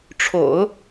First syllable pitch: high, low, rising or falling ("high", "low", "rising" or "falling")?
low